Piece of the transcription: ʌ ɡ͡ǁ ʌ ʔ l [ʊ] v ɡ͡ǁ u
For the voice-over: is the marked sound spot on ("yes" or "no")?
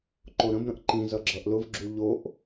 yes